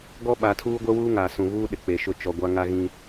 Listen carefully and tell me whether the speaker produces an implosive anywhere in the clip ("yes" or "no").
yes